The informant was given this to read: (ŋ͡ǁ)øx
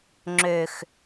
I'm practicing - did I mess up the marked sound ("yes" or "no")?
no